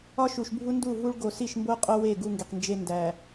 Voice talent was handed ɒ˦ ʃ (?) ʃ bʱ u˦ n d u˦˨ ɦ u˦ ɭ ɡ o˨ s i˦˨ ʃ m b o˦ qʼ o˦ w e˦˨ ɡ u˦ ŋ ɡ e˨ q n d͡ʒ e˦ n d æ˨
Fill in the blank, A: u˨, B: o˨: A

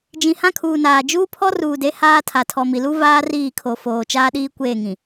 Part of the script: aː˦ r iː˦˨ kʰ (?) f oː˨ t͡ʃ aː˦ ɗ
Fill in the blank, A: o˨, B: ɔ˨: A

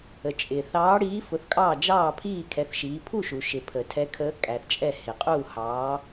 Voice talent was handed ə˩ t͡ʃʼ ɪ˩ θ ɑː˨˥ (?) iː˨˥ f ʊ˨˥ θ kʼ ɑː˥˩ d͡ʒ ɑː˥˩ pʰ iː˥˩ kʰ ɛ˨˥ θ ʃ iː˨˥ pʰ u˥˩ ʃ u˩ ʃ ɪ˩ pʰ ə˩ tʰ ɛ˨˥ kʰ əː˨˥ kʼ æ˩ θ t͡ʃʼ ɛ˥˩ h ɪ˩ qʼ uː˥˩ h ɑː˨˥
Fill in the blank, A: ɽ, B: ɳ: A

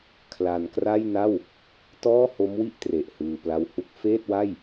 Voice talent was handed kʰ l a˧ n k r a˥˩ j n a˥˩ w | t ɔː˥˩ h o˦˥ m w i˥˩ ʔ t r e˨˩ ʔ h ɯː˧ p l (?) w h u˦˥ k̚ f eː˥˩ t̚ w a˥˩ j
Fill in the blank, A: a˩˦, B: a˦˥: B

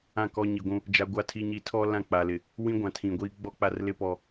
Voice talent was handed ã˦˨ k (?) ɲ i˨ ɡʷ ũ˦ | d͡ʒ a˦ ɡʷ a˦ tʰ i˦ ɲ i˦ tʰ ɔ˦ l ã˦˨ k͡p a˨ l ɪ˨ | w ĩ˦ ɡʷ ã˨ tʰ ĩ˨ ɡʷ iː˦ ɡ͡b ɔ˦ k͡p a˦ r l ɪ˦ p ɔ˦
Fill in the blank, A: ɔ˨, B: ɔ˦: B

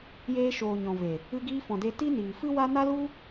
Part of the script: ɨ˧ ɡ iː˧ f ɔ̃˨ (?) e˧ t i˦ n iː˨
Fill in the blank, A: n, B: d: B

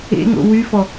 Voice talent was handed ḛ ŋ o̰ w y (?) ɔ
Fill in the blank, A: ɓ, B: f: B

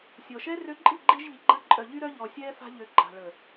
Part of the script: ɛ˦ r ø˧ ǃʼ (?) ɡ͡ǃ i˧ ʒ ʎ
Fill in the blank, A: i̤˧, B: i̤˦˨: B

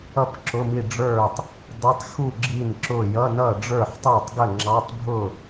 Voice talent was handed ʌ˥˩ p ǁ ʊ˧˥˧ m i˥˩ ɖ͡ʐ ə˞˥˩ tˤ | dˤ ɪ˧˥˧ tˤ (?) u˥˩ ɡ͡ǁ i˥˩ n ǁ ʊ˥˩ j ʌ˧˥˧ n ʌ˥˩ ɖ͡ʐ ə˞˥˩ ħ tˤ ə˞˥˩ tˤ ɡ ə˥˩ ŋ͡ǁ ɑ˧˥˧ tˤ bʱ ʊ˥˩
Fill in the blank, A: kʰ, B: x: B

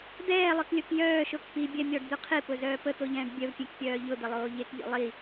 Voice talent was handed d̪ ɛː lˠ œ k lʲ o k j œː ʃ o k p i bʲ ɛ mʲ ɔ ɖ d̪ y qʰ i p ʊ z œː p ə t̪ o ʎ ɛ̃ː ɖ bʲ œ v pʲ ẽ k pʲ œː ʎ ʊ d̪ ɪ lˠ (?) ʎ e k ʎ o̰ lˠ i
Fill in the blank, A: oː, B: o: A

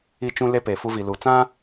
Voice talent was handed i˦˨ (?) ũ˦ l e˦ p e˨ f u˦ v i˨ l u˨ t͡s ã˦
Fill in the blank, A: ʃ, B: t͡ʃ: B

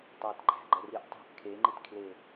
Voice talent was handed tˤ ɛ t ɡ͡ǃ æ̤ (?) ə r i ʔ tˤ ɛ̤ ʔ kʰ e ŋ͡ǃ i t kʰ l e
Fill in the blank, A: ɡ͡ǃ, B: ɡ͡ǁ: A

